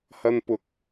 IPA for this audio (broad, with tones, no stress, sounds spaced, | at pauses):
h ɐ˧ n p ʊ˨˥ k̚